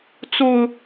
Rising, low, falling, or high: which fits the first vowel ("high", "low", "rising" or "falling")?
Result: low